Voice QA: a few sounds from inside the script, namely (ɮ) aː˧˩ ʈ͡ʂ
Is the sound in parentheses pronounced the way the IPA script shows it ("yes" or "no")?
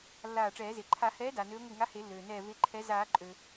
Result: no